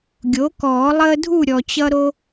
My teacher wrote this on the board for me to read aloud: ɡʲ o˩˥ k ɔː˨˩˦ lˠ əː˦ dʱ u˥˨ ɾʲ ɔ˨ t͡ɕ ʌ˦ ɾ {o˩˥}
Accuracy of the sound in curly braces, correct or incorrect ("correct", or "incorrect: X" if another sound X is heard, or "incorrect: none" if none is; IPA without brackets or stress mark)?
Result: incorrect: o˦